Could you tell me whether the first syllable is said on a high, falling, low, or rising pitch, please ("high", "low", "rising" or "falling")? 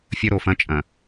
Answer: high